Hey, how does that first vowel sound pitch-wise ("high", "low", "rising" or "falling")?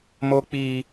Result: high